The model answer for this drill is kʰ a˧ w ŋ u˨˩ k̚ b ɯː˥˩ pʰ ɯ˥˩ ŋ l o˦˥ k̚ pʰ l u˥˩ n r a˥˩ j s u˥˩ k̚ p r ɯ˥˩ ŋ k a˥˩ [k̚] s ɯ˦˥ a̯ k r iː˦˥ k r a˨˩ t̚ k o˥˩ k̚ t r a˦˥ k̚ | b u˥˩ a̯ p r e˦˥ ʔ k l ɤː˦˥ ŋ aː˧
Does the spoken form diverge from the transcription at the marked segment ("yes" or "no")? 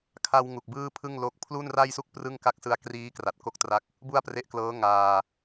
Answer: no